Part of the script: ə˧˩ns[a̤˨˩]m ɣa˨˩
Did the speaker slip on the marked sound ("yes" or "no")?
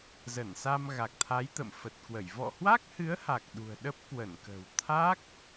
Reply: yes